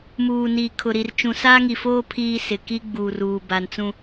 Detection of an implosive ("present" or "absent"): absent